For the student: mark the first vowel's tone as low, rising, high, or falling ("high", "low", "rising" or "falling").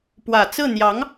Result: low